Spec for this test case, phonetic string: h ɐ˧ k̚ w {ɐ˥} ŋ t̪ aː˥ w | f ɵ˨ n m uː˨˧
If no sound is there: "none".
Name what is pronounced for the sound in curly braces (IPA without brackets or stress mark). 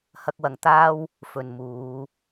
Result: ɐ˨